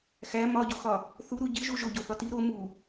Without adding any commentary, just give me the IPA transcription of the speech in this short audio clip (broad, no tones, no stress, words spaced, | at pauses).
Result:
xæ mɒɟoxɒ | θuɾu ɟiʒu ʒoɟoθɒ ti ɾo mu